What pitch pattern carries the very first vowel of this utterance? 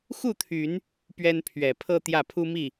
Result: falling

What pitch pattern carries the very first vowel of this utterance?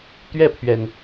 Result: falling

